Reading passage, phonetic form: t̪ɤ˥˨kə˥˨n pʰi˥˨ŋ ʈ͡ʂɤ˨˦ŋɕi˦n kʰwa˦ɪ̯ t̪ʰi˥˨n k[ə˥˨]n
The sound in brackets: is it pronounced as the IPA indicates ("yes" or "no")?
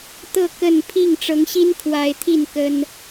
no